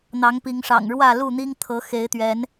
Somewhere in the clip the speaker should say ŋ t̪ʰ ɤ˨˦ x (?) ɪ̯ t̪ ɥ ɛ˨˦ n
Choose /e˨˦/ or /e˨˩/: e˨˦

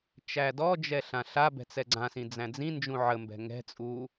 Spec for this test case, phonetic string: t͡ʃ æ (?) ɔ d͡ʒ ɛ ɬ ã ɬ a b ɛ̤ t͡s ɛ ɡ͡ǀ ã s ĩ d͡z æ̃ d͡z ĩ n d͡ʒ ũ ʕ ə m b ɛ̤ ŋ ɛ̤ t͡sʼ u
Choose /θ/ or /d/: d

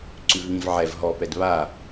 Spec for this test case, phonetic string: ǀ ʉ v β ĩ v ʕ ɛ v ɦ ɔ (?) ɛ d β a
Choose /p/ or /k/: p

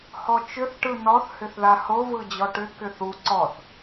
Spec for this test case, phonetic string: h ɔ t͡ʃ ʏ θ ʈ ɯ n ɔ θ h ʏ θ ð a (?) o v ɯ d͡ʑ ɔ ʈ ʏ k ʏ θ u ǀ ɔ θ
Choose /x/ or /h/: h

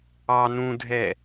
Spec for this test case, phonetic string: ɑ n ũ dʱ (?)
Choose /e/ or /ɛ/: ɛ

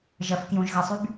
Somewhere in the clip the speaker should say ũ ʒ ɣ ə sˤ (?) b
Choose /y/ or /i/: y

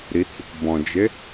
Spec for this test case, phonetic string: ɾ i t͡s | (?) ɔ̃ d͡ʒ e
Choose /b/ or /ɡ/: b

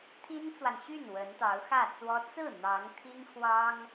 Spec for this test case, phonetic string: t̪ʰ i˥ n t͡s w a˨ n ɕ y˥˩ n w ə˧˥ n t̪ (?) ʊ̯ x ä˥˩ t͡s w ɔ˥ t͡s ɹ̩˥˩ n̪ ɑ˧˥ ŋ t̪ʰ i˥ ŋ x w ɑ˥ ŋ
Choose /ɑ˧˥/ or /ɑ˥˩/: ɑ˧˥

